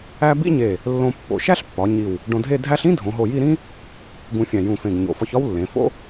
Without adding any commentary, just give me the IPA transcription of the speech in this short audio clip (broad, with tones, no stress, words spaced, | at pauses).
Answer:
æ˥ bḭ˥ɲe˧˩ | lːõ˧pːo̰˩˧ʃæ˥ɬ pːɒ˩˧ ɲi˧˩w | ɖõ˧dʱe˥˧ dʱæ˥ɬ ĩ˥ dʱõ˩˧ɦo˧˩ji˥˧ ɾĩ˥ | ɡũ˧fʲæ̃˧˩ jũ˧˩fẽ˧˩ɡ ɲo̰˩˧fɒ˧çɒ˥w lːẽ˩˧ fo̰˥